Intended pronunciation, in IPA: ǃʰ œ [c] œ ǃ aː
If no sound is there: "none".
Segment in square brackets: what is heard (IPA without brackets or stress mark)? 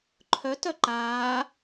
t